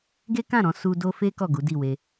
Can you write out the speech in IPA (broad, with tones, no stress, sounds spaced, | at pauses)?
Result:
ɡ e˦ k ã˦˨ ɾ ɔ̃˧ s u˧ d o˧ f e˦ k ɔ˦˨ ɡ u˨˦ d i˦˨ w e˧